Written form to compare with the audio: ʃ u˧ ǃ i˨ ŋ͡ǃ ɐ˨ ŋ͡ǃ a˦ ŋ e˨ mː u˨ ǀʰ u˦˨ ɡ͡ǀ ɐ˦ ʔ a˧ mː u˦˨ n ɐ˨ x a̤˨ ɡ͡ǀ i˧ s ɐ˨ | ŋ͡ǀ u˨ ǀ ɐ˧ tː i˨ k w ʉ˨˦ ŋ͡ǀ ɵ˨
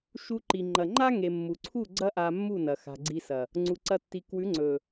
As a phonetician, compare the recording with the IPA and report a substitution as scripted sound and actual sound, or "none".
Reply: none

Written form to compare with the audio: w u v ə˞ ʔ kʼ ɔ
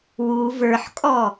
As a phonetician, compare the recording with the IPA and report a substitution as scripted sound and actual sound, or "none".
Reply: ʔ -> ħ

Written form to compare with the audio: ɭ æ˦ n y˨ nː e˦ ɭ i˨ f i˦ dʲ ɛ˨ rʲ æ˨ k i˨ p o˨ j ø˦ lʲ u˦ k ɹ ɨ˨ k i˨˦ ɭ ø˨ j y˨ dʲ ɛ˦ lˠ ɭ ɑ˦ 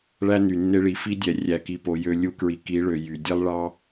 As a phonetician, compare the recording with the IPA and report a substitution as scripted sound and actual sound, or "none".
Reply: ɨ˨ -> i˨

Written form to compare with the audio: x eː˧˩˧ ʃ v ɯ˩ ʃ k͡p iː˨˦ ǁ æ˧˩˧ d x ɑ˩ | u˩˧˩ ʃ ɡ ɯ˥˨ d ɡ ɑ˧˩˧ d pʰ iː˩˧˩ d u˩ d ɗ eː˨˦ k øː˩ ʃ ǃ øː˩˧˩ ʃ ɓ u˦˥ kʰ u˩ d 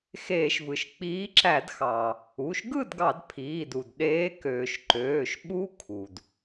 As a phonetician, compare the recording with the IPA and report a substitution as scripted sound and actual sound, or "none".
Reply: none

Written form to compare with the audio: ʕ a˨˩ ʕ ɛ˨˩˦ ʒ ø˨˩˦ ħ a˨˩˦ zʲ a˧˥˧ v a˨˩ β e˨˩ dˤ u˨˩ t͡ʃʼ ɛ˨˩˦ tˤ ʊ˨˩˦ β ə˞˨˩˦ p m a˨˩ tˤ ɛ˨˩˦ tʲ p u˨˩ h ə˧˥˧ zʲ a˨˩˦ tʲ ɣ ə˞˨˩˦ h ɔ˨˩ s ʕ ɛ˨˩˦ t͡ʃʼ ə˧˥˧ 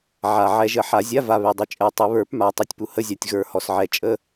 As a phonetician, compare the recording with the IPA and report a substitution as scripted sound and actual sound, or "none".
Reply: ø˨˩˦ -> ə˨˩˦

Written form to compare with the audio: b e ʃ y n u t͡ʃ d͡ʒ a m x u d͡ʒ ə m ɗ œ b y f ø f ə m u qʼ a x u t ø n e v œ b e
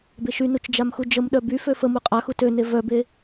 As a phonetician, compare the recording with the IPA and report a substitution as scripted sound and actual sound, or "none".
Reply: none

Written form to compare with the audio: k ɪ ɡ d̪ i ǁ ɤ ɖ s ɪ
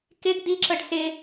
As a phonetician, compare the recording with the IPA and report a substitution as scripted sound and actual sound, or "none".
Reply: none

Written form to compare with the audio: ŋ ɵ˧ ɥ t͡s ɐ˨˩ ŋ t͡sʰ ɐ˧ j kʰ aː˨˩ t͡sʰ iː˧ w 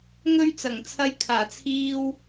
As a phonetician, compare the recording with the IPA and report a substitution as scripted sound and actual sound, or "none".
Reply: none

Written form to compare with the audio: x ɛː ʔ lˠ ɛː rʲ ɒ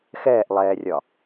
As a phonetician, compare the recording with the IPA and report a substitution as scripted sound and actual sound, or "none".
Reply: none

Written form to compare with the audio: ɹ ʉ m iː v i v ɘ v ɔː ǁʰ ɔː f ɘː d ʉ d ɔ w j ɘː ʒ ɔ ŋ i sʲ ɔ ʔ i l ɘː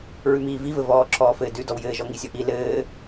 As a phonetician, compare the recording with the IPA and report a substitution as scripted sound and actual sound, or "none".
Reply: none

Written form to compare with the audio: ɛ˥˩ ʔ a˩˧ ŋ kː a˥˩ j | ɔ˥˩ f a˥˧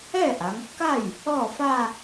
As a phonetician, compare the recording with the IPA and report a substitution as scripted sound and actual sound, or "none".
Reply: none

